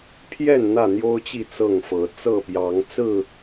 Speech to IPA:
pʰ j ɛ˥˨ n n̪ ä˥˨ n̪ j o˦ ʊ̯ t͡ɕ i˥˨ t͡s ɤ˥˨ ŋ f ɤ˨˦ t͡s ɤ˥˨ p j ɑ˨˦ ŋ t͡s ɹ̩˥˨

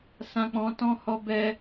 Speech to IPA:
s ã˧ k͡p ɔ̃˧ t ɔ̃˦ h ɔ˦ b ɛ˧

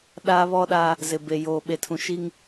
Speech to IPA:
ɗ aː˦ β ɔ˦ ɗ a˦ | z ɪ˨ b e˨ j oː˨ ɓ e˨ tʰ ũ˨ ʃ i˦ ŋ

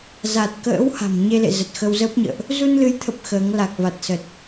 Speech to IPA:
z a˨˩ t̚ k ə̰ː˧˥ w h a̤˨˩ m ɲ e˧ l ḛ˧˨ z ə˨˩ t̚ x ə˧ w z əː˦˥ p̚ ɲ ə̰ː˧˨ ʔ | z u˧ n l ɨ˨˦ j t̪ʰ ə˨˩ p̚ x əː˨˦ ŋ l a˨˩ k̚ v a˨˩ t̚ s ə˨˩ t̚

